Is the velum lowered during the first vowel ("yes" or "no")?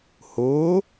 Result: no